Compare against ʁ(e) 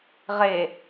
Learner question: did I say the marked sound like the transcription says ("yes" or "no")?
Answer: yes